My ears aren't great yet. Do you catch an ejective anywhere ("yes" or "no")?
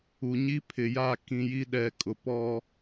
yes